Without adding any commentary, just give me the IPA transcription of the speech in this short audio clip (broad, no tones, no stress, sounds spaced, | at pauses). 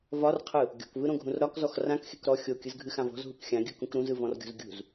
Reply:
v ɒ r qʰ ɯ | ɡʲ ɔ̤ k v ɯ ɾ õ ɡʱ ũ r ɾ ɒ k z ɔ x r ã k x e k ɾ ɔ xʲ o kʲ ɯ z ɡʱ ɨ x ã v ɔ̤ z ɦ u k xʲ ã ɡʲ ɯ k ũ k ɾ ũ z ɯ v ɔ̃ r ɡʲ ɔ̤ z ɡʲ ṳ z